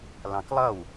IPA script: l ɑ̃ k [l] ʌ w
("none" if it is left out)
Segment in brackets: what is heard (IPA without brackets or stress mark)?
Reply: lˠ